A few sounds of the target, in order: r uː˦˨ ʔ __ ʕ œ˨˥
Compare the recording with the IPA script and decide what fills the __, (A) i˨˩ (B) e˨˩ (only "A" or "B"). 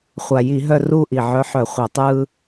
A